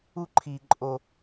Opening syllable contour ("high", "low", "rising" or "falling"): high